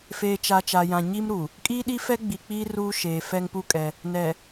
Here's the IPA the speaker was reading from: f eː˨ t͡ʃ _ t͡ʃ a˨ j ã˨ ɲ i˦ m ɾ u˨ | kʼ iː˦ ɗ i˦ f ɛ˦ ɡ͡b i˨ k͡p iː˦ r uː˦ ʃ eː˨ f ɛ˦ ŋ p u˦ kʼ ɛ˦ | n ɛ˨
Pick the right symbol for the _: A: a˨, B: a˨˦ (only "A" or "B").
A